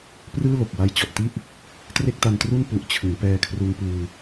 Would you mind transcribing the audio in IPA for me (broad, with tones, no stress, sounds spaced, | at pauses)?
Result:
p r ɯː˥˩ l o˨˩ k̚ w a˧ j t͡ɕ ɔ˨˩ ʔ t i˥˩ ʔ | t r e˥˩ k̚ t a˧ n t r u˥˩ n p u˨˩ ʔ t͡ɕʰ ɯ˩˦ ŋ p ɛː˧ kʰ r u˧ n p ɯː˧